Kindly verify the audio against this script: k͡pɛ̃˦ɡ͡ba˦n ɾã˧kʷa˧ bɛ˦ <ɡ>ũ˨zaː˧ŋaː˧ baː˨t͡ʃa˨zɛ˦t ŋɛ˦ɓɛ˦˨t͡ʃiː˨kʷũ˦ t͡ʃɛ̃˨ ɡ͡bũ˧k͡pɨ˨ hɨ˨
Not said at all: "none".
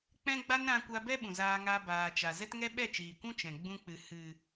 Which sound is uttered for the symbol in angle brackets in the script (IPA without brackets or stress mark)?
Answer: ɓ